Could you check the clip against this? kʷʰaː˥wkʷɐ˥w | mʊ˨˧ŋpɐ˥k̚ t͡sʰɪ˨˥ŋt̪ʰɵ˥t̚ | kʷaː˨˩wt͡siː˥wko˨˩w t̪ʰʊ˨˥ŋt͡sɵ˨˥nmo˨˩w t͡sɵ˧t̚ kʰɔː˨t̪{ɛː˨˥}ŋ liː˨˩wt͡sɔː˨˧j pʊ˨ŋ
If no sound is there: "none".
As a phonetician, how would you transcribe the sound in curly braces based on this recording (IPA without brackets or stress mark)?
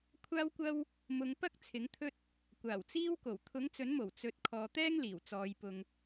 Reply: ɛː˥